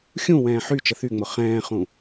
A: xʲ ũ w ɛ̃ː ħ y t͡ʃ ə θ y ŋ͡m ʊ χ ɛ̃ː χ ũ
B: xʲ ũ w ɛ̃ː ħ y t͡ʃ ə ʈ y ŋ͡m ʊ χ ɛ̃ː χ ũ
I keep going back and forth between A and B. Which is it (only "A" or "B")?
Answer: A